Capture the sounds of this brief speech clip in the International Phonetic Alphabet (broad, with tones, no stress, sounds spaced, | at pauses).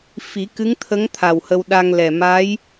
f i˨˩˦ k ɨ˧˥ ŋ t̪ʰ ə˧˥ ŋ t̪ʰ a˨˩ w h ə˧ w ɗ a˧ ŋ l ɛ˨˩ m a˧˥ j